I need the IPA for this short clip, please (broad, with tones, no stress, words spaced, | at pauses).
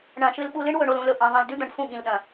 ɳɐ̃˨ʃɨ˧l ɓu˧lɨ˦ɳ wɵ˨ɳo˨lũ˨lɵ˨ ʔĩ˨ ðˤĩ˨ldʉ˦d̪ɐ̃˨ɳ fũ˦˨ɠĩ˨lɗɐ̃˨